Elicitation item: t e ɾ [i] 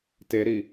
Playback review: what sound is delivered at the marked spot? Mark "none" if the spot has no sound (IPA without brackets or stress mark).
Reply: i